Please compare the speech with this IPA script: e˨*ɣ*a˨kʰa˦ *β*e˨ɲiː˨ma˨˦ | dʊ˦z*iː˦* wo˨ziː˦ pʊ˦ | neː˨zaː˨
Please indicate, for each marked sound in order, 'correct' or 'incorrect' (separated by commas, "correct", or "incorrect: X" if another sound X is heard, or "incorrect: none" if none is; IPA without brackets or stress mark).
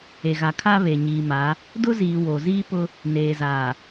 correct, correct, incorrect: iː˨